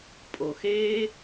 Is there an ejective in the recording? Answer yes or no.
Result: yes